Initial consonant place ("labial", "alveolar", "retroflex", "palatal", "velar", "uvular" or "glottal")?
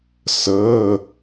alveolar